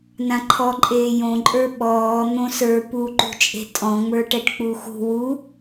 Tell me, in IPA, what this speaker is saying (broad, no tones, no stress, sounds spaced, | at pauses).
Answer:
n ã ǃʰ ɔ ǃʼ eː j õ ǃʼ ə˞ ɓ ɔː n̪ õ s ə˞ p u ǃ ṳ t͡ʃʼ e̤ tʼ ɔ̃ ŋ͡m ə˞ ʈ ɛ ʈ k͡p u x ṳ w u